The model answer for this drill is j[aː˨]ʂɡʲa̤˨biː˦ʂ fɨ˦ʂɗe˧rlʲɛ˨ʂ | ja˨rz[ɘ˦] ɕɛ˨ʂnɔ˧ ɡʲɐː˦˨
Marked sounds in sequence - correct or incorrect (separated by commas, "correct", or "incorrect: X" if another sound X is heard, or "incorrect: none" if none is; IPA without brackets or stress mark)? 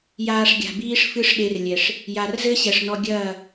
incorrect: aː˧, correct